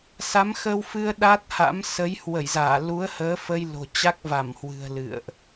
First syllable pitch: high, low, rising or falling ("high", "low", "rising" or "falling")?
rising